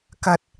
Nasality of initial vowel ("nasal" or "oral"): oral